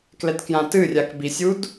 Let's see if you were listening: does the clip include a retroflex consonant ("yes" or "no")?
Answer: no